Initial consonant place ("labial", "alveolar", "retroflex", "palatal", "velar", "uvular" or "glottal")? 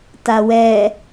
alveolar